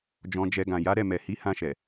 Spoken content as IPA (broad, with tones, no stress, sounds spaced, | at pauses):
d͡ʒ ɔ̃˧ d͡ʒ ɛ˧ ɡ ã˨ j a˨˦ ɾ ɛ˦˨ m ɛ˨ h i˨˦ h ã˧ ʃ ɛ˨